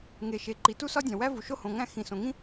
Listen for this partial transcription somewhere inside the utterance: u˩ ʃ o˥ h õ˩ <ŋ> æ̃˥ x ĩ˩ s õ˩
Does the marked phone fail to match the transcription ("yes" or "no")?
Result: no